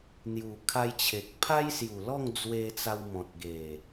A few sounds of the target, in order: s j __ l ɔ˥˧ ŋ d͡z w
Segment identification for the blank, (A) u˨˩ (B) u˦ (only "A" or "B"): A